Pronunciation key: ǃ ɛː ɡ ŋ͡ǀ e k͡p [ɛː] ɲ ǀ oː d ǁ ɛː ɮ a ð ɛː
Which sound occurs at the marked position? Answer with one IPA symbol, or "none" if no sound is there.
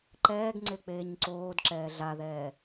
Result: eː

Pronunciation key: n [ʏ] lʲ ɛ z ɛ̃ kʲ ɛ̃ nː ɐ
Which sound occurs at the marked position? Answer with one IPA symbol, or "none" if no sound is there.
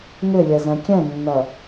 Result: ʏ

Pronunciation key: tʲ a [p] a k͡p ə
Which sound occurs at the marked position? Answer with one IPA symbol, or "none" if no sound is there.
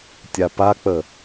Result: p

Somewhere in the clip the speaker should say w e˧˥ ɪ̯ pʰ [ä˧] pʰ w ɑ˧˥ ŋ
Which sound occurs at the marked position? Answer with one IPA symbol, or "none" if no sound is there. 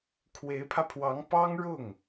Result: ä˧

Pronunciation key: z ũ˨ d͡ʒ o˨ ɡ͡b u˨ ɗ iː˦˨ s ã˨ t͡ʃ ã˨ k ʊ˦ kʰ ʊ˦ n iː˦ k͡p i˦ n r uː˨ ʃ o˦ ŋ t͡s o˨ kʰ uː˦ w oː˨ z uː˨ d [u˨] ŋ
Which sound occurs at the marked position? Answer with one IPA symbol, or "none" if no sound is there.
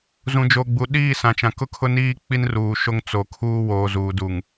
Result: u˨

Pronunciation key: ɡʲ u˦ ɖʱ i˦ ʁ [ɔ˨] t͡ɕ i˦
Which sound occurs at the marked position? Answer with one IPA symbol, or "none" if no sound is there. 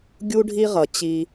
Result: ʌ˨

